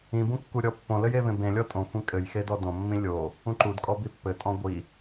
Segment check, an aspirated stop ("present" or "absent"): absent